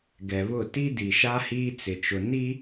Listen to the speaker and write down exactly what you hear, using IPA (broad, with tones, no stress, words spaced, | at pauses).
ɡɛ˨βʊ˦˨ ti˦di˨ʃa˦ hiː˦t͡sɪ˨t͡ʃʊ˨ ni˦